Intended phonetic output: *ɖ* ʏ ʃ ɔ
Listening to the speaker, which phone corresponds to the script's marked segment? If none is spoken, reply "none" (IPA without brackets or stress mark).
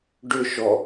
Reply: ɖ